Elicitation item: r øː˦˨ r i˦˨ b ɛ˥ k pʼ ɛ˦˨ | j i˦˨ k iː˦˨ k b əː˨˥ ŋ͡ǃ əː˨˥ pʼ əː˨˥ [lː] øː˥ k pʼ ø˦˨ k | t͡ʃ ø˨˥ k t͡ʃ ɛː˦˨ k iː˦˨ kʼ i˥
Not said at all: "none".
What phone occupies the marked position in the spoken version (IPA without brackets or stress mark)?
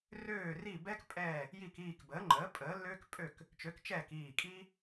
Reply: lː